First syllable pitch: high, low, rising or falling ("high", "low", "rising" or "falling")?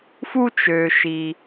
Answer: high